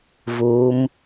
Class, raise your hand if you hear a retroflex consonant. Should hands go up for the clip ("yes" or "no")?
no